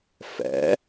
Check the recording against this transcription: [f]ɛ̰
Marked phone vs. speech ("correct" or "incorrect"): correct